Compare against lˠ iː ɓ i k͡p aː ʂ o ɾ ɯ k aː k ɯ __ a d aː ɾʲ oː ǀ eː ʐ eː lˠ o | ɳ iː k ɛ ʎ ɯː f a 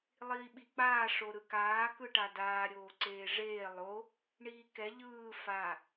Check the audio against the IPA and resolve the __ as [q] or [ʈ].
ʈ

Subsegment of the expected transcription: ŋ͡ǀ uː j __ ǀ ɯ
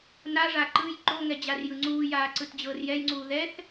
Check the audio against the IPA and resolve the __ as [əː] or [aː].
aː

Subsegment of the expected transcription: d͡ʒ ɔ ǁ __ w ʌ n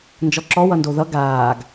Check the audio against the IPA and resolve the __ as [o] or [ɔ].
ɔ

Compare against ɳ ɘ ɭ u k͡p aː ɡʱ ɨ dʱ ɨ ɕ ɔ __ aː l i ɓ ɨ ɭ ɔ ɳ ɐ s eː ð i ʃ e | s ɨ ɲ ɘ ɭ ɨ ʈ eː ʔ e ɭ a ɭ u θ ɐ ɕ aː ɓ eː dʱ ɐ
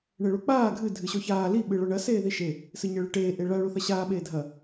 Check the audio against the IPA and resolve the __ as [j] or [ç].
ç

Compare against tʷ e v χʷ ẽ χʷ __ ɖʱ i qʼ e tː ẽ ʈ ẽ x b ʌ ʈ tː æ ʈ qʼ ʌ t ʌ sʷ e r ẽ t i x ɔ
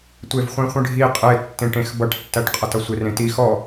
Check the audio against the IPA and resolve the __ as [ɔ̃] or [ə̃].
ə̃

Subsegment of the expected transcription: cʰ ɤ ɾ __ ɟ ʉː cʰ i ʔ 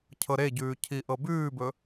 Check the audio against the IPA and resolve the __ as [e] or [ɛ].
e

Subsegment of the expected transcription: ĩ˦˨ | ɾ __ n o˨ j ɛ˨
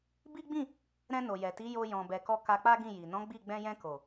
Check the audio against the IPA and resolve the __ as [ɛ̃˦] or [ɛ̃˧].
ɛ̃˧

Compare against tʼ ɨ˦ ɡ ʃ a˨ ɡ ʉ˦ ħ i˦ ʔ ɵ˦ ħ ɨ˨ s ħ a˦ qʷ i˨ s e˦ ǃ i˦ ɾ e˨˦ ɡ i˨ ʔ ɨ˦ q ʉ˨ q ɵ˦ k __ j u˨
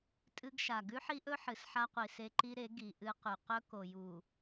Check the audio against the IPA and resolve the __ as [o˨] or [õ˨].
o˨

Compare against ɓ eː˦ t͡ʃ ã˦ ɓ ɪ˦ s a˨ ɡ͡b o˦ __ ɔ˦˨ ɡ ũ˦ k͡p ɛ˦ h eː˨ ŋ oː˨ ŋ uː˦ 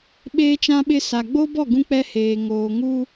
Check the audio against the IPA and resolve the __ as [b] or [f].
b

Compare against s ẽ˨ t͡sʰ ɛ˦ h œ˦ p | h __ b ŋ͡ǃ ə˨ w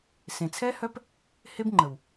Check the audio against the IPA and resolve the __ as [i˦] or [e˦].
e˦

